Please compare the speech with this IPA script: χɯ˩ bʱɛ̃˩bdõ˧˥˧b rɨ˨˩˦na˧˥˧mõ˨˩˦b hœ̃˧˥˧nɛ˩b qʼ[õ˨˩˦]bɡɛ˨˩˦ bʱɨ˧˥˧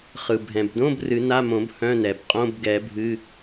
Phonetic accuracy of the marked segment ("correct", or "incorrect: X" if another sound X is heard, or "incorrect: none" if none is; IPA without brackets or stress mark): incorrect: õ˧˥˧